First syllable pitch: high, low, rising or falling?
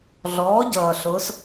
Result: rising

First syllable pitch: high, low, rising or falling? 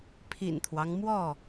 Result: low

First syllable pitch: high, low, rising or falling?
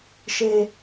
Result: low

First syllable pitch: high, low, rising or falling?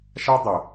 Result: high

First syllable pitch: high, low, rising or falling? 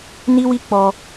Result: high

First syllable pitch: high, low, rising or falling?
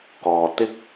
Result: low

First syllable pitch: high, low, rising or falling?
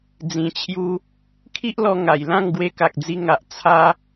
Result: low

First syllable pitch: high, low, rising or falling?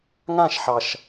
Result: falling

